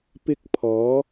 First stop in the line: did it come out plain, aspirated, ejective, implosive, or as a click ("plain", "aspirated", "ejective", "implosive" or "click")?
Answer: plain